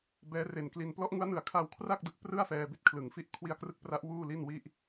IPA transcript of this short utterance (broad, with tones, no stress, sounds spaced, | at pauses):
b ɛː˦˥ r e˨˩ n k l i˧ n p l ɔ˦˥ ʔ ŋ u˦˥ a̯ n ɯ˨˩ a̯ kʰ aː˧ w kʰ r a˥˩ k̚ d ɯ˨˩ k̚ p r ɯ˥˩ a̯ f ɛː˧ b i˦˥ t̚ kʰ l ɯ˩˦ ŋ f i˦˥ ʔ kʰ w i˧ a̯ k r ɯ˦˥ k̚ p r a˦˥ ʔ w uː˥˩ l i˥˩ n w i˥˩ ʔ